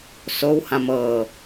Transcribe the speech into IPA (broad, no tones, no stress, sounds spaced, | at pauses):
s o w h ã m ɤː